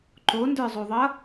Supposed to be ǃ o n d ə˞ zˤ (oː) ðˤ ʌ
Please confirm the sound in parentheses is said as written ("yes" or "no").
no